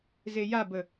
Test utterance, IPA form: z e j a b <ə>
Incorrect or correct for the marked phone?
correct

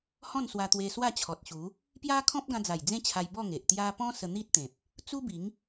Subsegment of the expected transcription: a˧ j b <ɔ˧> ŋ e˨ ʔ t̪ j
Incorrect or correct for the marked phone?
incorrect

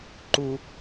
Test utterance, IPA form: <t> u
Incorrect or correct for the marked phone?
incorrect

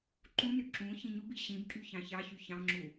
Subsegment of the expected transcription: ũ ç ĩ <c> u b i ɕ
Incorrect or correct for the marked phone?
incorrect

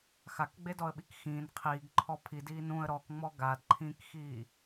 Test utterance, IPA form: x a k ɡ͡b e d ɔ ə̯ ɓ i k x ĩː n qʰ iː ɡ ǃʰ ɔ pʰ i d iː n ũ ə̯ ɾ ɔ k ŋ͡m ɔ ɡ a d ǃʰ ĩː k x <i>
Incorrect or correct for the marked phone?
incorrect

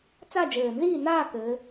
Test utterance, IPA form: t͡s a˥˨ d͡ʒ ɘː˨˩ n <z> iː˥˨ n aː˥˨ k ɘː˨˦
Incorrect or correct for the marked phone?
correct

